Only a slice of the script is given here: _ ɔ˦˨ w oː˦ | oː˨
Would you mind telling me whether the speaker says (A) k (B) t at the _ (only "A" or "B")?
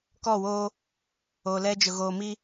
A